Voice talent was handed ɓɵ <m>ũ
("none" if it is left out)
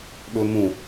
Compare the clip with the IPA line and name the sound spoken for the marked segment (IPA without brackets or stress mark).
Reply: m